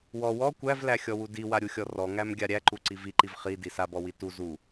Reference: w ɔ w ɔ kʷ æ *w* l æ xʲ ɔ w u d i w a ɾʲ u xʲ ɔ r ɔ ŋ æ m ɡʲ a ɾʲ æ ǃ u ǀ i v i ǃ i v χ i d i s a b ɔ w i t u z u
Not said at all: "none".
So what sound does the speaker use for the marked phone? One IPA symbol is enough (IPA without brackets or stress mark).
v